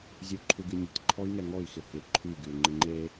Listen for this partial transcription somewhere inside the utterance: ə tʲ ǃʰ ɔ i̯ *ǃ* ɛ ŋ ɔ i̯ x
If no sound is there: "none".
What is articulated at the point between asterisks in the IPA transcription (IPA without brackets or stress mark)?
ŋ